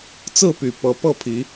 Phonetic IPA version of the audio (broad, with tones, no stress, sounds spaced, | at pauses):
t͡s ɹ̩˥˨ p y˨˩ p ɤ˨˦ p ɤ˥˨ pʰ i˨˦